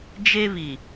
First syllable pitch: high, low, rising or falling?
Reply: high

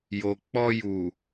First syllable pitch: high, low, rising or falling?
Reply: low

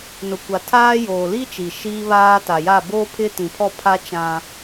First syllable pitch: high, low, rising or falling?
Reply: low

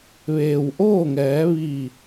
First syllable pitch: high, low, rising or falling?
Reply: low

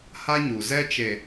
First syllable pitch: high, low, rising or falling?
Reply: high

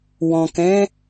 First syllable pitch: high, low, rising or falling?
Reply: low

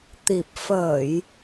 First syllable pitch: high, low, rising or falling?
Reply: low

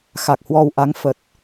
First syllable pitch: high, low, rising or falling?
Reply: low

